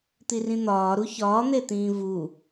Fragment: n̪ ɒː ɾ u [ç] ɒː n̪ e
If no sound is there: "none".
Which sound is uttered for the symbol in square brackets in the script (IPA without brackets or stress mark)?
ç